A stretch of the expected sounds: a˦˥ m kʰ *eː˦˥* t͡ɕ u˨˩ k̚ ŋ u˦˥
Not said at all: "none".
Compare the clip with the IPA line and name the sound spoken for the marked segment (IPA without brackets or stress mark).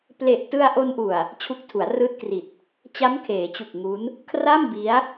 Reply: eː˩˦